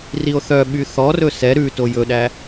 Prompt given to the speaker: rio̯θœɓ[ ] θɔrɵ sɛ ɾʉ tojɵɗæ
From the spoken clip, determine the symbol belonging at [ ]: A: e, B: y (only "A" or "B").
B